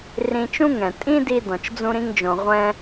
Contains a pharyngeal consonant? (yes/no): no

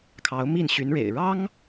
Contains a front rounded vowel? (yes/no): yes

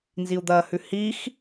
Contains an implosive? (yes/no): no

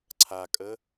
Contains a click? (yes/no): yes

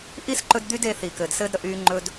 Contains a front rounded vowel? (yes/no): yes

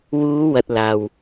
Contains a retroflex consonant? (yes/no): no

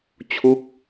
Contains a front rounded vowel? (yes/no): no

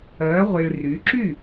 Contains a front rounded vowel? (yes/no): yes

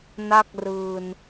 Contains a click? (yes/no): no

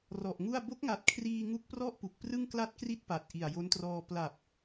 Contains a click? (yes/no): no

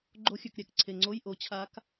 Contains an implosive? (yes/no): no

